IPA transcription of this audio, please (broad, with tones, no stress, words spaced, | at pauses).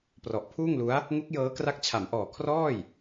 prɔ˨˩ʔpʰuː˥˩ŋlu˦˥a̯ | ŋu˦˥k̚ jɤː˦˥kra˦˥k̚t͡ɕʰa˩˦mʔɔː˨˩ kʰrɔː˥˩j